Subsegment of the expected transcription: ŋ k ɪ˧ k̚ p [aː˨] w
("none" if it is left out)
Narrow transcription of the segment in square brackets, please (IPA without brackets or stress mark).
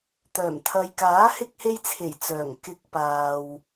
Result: aː˨